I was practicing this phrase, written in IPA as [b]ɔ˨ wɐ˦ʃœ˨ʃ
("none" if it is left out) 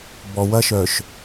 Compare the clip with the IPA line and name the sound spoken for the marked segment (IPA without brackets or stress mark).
b